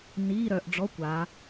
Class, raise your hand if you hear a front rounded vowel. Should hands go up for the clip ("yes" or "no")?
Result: yes